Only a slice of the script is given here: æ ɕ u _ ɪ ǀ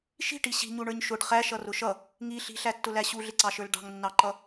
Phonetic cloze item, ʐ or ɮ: ɮ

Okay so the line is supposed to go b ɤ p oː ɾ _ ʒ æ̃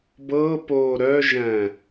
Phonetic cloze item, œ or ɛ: œ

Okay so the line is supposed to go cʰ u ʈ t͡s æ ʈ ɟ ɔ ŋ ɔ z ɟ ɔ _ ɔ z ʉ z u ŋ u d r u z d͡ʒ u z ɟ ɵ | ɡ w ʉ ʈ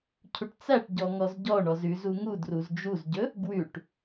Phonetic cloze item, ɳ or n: ɳ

